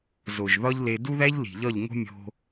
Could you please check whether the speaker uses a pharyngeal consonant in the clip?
no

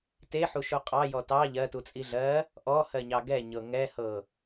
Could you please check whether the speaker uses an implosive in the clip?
no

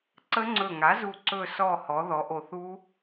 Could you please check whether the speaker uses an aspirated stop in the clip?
no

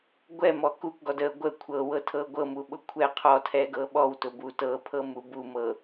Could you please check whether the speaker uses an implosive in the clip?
yes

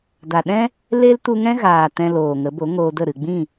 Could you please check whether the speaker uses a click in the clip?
no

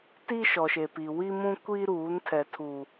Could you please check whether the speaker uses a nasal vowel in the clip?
yes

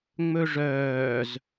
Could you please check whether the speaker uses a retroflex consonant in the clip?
yes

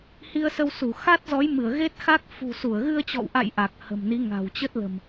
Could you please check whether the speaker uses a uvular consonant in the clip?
no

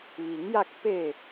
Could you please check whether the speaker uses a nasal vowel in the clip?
no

